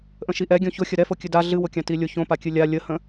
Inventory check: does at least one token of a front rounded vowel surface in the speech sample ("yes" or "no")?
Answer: no